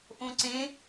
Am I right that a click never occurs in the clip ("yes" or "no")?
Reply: no